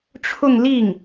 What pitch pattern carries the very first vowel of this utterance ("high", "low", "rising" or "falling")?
falling